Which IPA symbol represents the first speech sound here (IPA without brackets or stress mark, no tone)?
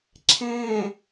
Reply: ǁʰ